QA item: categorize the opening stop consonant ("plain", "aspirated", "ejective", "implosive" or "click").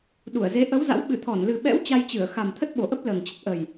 implosive